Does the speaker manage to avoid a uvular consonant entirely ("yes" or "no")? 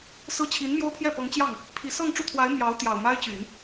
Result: yes